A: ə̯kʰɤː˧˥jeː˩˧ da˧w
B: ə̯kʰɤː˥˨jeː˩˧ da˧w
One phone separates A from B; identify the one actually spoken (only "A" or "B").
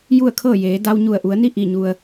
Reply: B